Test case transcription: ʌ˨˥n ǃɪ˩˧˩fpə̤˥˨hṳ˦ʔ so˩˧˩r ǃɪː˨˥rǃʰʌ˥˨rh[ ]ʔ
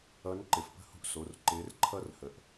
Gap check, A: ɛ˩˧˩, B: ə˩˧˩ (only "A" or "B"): B